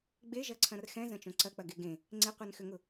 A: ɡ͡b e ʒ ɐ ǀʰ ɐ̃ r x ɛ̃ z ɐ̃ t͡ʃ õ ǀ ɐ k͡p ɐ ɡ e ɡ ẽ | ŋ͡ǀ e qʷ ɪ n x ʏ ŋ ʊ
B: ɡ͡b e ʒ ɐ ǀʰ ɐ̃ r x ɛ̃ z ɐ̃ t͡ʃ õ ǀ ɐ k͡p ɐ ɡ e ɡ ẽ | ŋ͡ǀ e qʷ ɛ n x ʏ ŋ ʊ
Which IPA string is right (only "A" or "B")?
B